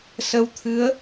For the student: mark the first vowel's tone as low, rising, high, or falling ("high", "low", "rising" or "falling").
rising